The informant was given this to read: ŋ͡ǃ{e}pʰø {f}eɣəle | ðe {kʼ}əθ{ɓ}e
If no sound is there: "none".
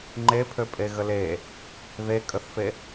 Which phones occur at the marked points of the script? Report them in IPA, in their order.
e, pʼ, kʼ, f

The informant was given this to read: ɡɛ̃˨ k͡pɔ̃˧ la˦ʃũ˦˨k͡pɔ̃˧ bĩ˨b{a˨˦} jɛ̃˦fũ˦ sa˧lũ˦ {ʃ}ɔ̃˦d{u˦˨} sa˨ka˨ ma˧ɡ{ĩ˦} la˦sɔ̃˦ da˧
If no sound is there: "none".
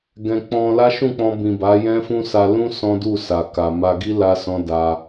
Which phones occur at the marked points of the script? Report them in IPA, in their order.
a˨˦, s, u˦˨, i˦

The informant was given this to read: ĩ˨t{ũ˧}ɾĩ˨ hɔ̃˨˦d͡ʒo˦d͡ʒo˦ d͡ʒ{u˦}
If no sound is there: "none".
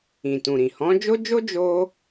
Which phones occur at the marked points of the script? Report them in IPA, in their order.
ũ˨, o˦

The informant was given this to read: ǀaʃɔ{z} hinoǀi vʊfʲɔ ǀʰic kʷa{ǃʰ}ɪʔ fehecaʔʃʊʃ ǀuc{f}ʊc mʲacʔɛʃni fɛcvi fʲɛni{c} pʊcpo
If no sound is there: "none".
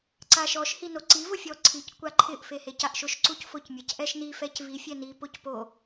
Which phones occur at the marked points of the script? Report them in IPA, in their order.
ʃ, ǃʰ, f, none

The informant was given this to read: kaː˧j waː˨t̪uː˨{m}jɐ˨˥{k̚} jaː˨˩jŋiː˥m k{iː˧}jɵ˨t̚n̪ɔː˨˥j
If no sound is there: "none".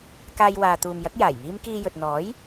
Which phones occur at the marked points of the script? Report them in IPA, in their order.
m, k̚, iː˧

